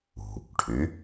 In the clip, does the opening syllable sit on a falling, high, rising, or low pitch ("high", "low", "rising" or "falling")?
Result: low